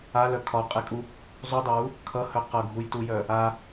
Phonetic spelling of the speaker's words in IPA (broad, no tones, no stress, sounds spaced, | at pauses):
a l œ kʰ ɒ qʼ e kʼ u | zˤ u dˤ ə w u | kʰ ʌ h œ q ʌ ɡʱ u j t u j œ | a